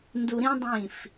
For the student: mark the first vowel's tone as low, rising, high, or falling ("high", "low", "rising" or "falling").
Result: low